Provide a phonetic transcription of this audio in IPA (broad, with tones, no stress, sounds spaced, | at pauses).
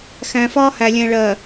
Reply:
x æ̃˨ f ɒː˦ h æ˨ lʲ ɛ̃˨ ɭ ɜ˨